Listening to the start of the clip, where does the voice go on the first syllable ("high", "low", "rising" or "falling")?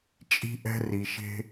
high